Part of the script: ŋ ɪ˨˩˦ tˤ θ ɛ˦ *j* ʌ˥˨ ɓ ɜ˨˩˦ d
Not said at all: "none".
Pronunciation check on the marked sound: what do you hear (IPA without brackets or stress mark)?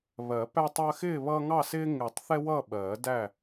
w